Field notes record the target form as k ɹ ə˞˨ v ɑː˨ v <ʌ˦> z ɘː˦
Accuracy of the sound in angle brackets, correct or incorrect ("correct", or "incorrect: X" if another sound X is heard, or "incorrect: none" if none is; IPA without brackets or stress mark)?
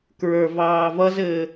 correct